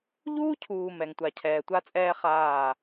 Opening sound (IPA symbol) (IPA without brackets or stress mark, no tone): ʎ